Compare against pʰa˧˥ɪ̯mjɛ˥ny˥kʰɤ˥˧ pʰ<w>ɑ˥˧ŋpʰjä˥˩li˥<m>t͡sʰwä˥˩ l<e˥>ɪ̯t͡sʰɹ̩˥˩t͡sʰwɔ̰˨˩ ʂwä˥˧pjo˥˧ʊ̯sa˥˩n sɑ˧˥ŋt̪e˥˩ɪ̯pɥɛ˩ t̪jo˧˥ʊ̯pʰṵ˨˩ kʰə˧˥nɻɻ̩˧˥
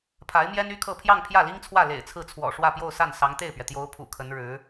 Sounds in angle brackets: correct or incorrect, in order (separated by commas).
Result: incorrect, incorrect, incorrect